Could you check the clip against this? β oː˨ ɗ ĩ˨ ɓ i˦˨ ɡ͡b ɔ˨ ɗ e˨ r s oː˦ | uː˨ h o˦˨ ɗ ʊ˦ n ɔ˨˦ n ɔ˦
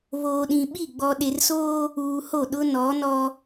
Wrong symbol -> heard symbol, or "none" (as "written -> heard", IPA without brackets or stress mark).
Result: none